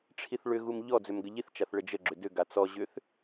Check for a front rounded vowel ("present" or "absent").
present